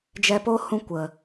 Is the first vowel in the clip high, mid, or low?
mid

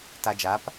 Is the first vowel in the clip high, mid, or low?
low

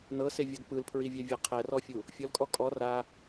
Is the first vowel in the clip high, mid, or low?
mid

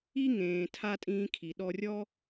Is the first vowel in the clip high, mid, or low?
high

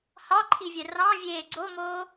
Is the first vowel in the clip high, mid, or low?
low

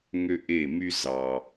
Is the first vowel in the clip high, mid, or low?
mid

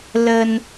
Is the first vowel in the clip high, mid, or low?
mid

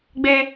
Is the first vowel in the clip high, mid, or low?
mid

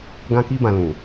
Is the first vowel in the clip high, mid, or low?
low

